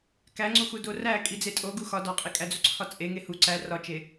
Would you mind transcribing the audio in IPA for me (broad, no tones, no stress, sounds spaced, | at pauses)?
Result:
k æ ŋ͡ǀ u x u d o r æ kʼ i d͡z e tʼ o ɡ u x ɒ d ɒ qʼ i kʼ æ d͡z u ǀʰ ɒ t͡sʼ e ŋ e h u ǀ æ r ɒ t͡ʃ e